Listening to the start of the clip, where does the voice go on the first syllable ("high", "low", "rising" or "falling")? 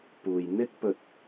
low